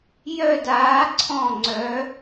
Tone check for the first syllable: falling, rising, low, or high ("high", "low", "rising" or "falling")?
falling